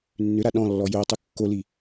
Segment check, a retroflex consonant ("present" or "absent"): absent